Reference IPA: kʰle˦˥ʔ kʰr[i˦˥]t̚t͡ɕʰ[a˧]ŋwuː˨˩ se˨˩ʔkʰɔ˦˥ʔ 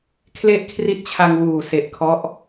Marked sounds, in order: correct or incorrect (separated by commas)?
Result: correct, correct